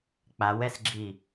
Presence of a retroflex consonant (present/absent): absent